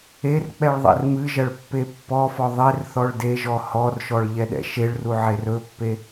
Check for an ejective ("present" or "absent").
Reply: absent